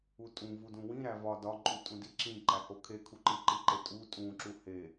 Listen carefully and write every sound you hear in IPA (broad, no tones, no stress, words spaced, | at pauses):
utʼũ vudũwĩ ɾævɒ dɒǃʼutʼũ diǁĩ ǃæhokʰe kʰuǃiǃiǃe tʼu tʼũ ǁuhe